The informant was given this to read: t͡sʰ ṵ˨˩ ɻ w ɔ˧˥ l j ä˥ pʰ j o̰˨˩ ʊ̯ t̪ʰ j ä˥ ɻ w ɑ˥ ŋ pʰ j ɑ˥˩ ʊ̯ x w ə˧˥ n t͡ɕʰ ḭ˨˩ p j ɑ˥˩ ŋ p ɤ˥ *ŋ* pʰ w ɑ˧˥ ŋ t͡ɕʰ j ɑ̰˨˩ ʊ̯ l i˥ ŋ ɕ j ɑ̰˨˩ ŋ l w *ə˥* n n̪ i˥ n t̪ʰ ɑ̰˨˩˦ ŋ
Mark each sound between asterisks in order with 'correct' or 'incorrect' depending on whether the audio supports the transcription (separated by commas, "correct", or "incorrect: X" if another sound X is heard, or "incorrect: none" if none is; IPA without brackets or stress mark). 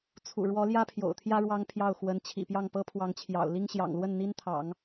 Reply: incorrect: none, incorrect: ə˥˩